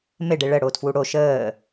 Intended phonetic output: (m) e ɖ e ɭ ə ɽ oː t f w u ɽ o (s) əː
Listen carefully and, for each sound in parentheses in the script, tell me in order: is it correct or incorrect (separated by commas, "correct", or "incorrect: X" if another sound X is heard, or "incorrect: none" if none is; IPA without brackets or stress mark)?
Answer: correct, incorrect: ʃ